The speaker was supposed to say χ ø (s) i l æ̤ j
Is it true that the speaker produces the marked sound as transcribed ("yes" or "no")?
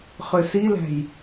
yes